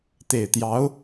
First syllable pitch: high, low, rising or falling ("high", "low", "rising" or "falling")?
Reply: low